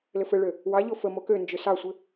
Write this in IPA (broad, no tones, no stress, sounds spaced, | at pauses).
l ɘ f ɘ ɭ ø | w ɑ ʎ o f ə m o k ø n d͡ʒ ø s ɑ sʷ ɘ